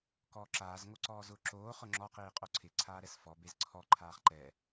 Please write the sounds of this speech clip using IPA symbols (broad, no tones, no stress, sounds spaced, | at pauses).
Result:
k ɔː ǁ aː z ŋ o ǀ ɔː z ʊː ǁ oː χ ʊ ŋ͡ǁ ɔ q iː qʼ o ǀʰ ɪ ǀʰ aː ɾ ɛ s f ɔ b e z ǀʰ ɔ ǃʰ aː χ ǃ ɛ